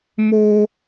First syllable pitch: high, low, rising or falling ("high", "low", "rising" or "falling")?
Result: high